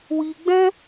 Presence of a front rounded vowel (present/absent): absent